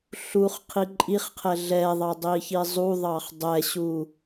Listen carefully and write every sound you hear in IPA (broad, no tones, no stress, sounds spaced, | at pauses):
ɬ u χ qʰ i ǃʼ i χ qʰ ɛ ɮ ɛ ðˤ ɑ dˤ i ç i zˤ u ðˤ ɑ χ dˤ ɛ ɕ u